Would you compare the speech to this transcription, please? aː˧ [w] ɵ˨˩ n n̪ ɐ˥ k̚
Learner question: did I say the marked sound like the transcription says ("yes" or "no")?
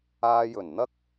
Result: no